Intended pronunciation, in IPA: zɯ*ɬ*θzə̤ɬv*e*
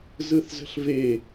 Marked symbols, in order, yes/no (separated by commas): no, yes